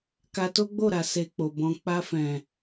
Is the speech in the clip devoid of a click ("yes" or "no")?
yes